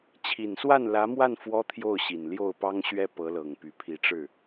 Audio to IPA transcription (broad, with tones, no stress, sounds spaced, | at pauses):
t͡ɕʰ i˨˩ n s w a˥˩ n l ä˧˥ m w a˥˩ n f w ɔ˥ t̪ʰ j o˥˩ ʊ̯ ɕ i˨˩ n l j o˥˩ ʊ̯ p ɑ˥ ŋ ɕ ɥ ɛ˥ p ɤ˧˥ l ɤ˨˩ ŋ p y˧˥ pʰ i˧˥ ʈ͡ʂ ɻ̩˥˩